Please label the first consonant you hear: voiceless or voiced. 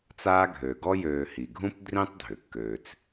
voiceless